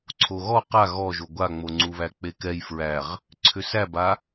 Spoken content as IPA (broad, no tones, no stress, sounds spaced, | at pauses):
ǀʰ o ɣ ɔ q a ɣ ɔ ʒ o ɡʷ a ŋ͡m o ŋ͡ǀ u β æ k͡p e k ɛ j f ɹ æ ʁ | ǀʰ ʏ s æ b a